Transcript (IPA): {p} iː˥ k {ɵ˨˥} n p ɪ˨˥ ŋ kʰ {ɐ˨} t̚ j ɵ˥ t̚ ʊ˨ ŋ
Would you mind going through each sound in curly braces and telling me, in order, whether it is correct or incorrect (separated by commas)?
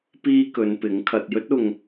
correct, incorrect, correct